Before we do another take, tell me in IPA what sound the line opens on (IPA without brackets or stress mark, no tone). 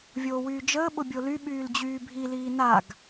vʲ